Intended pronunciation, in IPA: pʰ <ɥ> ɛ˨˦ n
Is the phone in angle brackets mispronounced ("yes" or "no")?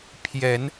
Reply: yes